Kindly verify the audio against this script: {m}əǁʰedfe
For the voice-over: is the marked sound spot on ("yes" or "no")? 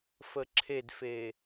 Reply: no